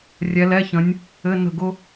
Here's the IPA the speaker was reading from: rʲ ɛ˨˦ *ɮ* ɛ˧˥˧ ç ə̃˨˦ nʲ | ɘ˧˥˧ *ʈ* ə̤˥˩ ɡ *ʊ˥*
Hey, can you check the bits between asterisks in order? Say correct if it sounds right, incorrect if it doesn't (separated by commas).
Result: incorrect, incorrect, correct